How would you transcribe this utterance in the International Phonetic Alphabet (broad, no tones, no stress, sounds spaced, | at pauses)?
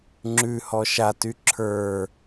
ŋ͡ǁ ʉ h ɔ ʃ a t y ǁʰ ə˞